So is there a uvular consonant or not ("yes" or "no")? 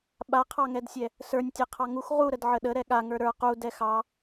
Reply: yes